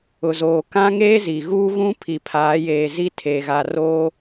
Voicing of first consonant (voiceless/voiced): voiced